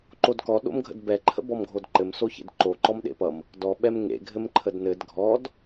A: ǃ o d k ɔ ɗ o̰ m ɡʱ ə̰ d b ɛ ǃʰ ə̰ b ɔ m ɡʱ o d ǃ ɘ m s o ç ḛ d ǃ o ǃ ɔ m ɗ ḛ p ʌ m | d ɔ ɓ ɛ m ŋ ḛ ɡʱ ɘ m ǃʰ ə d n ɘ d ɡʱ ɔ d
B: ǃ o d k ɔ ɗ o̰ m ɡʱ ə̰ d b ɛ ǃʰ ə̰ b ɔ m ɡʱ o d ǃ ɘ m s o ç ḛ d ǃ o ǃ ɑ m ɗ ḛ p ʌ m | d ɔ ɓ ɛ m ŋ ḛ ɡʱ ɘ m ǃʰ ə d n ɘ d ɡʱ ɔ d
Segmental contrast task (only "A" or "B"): A